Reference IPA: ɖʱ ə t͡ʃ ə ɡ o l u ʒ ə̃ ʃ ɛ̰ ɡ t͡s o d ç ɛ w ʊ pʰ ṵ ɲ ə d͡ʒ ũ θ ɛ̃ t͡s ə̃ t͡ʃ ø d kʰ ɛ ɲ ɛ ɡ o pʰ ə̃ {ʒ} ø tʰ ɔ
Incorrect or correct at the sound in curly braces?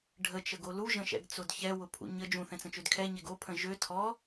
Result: correct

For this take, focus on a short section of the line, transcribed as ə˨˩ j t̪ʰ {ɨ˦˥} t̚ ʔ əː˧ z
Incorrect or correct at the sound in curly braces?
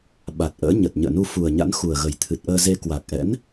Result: incorrect: ɨ˨˩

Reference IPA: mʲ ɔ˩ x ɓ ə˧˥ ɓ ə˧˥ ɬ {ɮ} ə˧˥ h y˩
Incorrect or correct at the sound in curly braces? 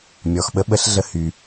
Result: correct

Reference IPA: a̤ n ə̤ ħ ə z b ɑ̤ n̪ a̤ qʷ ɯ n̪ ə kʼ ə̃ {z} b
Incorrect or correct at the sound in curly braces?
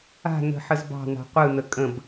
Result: incorrect: none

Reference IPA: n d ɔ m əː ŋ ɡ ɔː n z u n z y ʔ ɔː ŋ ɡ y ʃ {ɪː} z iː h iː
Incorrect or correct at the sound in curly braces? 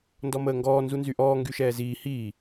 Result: incorrect: ɛː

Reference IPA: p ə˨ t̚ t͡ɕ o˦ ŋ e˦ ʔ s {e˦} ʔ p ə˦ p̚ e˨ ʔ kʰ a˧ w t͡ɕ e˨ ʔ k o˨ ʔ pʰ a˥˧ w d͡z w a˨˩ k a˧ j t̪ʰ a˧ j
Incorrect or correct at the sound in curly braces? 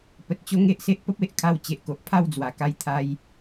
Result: correct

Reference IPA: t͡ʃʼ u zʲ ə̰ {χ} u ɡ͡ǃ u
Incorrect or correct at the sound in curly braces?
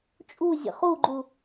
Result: correct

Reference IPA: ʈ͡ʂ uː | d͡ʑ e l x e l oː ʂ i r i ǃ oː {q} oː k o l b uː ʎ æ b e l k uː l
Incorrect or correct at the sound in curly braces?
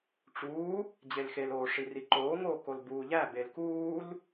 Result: incorrect: ŋ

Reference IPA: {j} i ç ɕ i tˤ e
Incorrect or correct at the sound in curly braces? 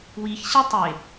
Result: incorrect: w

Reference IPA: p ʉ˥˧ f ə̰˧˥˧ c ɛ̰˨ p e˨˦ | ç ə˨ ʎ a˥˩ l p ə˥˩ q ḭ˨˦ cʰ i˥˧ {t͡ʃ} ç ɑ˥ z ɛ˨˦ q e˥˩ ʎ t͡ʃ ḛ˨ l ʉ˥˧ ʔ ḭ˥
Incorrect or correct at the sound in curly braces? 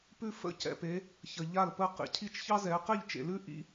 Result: correct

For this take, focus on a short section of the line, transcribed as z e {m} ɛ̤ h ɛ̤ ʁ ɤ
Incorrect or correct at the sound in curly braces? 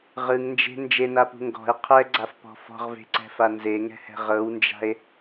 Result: incorrect: ŋ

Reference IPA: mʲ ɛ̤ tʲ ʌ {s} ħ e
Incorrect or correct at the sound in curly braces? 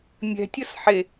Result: correct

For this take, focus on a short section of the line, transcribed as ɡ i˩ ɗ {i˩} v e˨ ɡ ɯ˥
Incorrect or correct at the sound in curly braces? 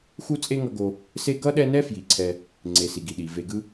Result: correct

